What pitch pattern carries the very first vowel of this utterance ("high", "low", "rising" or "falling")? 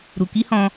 low